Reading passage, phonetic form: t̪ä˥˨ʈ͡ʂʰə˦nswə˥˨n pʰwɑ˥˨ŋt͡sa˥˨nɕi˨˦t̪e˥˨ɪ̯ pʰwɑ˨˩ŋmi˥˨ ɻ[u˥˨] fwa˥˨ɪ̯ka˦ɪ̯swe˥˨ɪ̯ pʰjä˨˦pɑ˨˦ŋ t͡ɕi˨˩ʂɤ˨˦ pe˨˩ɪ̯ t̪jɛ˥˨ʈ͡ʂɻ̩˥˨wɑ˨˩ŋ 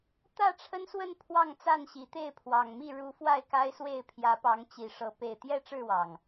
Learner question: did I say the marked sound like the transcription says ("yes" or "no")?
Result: no